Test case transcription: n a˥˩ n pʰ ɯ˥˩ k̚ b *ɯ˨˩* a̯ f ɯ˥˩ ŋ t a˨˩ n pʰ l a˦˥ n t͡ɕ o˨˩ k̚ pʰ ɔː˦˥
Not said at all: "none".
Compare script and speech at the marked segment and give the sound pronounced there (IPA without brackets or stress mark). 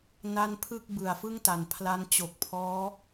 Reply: ɯ˨˩